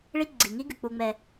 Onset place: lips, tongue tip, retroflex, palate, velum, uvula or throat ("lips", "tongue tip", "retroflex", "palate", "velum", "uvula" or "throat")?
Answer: retroflex